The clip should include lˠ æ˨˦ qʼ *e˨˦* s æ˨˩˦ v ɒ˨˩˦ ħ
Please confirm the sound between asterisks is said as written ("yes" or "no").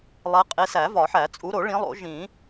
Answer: yes